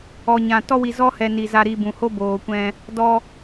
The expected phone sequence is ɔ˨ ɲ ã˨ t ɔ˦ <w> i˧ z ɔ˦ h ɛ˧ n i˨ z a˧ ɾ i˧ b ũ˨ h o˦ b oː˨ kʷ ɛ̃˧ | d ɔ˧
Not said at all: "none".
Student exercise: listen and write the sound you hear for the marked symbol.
w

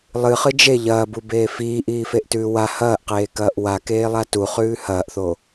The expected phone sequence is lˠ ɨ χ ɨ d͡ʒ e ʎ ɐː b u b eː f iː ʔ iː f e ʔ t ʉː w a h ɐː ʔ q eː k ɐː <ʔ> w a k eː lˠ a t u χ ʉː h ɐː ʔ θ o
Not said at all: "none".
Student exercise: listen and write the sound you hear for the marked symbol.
ʔ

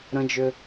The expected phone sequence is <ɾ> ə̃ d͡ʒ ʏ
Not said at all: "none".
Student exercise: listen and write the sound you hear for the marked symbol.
ɾ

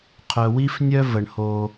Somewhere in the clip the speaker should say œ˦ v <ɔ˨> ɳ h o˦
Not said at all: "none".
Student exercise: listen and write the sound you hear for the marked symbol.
ə˨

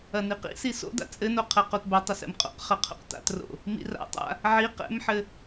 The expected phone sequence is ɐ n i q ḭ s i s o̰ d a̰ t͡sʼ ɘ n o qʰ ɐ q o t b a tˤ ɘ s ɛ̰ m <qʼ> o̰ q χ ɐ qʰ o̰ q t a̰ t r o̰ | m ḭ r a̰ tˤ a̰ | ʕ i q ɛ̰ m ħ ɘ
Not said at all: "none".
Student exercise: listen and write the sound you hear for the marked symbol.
qʼ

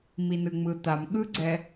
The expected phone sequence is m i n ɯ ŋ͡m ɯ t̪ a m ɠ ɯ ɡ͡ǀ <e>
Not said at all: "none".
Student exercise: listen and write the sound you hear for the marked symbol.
ɛ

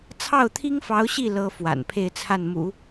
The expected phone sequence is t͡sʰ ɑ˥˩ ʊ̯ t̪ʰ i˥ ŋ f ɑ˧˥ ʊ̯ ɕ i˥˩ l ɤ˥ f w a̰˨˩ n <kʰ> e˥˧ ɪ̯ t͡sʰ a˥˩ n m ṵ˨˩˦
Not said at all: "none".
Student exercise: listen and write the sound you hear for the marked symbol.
pʰ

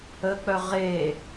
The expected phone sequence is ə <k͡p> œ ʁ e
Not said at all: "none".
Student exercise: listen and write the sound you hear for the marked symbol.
k͡p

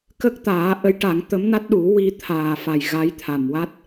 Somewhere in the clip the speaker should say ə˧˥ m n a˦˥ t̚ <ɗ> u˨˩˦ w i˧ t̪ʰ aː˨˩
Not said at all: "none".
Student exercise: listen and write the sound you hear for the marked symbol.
ɗ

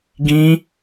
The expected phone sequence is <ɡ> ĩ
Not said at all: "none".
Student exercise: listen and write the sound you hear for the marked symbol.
ɡ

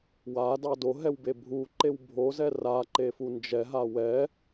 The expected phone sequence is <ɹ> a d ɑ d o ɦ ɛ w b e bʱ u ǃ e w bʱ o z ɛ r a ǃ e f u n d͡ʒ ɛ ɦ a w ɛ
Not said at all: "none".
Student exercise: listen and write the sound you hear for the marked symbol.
w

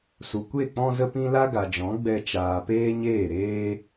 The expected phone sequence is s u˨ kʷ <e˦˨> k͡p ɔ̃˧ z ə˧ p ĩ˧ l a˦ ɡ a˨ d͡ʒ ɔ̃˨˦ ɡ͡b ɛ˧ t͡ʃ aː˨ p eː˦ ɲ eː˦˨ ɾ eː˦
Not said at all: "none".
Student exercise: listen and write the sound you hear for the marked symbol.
e˦˨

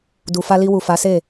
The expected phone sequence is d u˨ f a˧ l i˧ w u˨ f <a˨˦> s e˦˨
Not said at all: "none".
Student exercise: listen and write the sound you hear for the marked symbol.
a˨˦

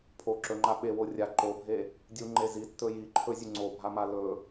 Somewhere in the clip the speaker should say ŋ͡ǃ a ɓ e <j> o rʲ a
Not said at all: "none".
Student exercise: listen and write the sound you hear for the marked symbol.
w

